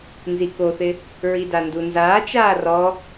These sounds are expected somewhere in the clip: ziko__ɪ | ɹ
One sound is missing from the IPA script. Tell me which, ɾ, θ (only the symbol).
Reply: θ